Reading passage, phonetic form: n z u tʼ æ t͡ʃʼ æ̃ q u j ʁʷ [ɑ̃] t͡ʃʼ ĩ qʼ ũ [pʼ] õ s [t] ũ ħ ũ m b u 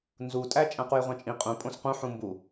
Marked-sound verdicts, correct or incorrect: correct, correct, incorrect

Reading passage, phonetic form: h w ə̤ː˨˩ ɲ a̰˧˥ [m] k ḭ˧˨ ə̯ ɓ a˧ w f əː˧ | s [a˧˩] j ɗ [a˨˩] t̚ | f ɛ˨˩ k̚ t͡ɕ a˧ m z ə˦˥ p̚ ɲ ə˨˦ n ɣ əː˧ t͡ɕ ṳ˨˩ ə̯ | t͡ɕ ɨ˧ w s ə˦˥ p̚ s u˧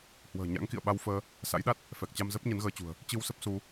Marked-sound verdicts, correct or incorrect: incorrect, incorrect, incorrect

